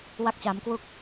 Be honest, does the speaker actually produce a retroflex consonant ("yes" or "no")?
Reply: no